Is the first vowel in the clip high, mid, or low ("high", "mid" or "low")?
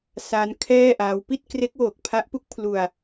low